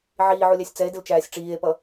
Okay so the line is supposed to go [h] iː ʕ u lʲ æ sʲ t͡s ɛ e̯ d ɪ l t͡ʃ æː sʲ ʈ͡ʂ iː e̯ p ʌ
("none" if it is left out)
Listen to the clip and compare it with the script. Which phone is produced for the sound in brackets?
ʕ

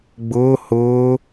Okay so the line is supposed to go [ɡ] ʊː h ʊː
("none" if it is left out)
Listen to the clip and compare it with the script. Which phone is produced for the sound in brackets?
ɡ͡b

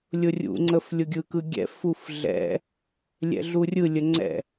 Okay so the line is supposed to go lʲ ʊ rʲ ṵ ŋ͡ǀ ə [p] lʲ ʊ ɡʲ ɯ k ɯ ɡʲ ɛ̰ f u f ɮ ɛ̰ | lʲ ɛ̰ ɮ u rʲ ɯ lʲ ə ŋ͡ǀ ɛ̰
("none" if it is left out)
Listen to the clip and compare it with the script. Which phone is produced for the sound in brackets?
f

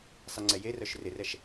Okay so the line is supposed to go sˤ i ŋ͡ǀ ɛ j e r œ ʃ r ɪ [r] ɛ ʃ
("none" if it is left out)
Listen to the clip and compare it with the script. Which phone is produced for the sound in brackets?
r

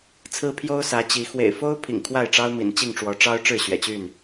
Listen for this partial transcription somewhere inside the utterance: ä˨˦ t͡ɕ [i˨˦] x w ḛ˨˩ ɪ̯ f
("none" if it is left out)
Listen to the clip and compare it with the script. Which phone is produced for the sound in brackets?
i˨˦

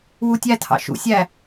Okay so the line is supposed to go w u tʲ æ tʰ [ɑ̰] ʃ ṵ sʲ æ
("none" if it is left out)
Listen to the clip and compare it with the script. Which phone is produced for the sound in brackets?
ɑ̰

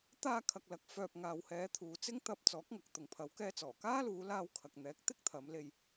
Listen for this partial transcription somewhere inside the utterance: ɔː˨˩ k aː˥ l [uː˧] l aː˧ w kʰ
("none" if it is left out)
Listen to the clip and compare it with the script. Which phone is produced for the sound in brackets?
uː˨˧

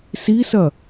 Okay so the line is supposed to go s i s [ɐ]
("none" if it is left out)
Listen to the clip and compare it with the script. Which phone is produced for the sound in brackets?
ɐ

